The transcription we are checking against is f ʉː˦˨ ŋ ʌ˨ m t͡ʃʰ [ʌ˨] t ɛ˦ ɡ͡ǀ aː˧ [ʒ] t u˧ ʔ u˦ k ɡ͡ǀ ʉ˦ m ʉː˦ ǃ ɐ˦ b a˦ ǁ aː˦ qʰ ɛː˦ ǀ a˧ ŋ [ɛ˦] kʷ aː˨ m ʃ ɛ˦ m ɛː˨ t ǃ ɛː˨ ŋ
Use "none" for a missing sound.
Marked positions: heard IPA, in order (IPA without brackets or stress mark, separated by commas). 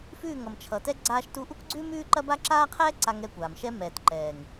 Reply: ʌ˨, ʃ, ɛ˦˨